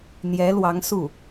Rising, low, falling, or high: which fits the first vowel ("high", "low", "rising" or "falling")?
rising